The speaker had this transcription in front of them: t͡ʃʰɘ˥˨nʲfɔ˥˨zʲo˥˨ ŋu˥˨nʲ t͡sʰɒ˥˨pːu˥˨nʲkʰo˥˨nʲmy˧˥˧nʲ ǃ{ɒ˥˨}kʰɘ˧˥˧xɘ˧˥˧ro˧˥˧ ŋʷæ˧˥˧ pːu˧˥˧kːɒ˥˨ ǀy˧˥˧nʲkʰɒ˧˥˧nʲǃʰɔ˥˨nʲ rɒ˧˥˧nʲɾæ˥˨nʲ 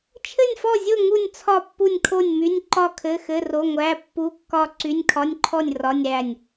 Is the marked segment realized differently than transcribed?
no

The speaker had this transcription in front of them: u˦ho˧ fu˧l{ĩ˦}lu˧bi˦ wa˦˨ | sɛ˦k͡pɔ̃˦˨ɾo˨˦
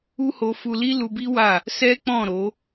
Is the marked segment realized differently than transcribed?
yes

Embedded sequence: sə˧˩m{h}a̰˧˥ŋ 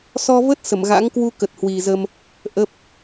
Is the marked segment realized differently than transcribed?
yes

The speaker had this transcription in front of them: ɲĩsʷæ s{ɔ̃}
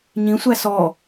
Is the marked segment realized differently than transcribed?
yes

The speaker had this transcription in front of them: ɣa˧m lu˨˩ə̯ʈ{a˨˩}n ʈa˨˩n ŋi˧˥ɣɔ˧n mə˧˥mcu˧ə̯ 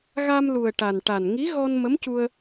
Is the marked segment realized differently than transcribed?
no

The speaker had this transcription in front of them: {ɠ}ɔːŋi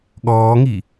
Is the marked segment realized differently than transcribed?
no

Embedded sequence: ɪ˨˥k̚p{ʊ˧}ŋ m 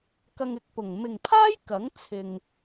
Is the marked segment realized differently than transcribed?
yes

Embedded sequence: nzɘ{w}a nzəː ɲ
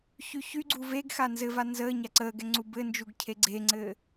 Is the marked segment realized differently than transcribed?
yes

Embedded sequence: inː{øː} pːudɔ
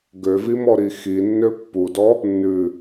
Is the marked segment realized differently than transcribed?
yes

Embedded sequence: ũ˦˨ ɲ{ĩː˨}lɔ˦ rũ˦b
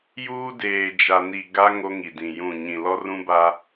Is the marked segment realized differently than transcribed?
yes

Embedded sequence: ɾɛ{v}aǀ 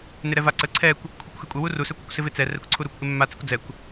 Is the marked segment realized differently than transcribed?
no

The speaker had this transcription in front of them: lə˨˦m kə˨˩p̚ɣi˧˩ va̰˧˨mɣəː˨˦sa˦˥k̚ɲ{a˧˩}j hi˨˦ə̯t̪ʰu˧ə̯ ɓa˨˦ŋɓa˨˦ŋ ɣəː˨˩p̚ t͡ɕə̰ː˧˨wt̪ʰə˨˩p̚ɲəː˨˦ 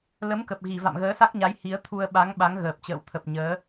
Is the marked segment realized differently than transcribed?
yes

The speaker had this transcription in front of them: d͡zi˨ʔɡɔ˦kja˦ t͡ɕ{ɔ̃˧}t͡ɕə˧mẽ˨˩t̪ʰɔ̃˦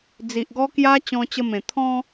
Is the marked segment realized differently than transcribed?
no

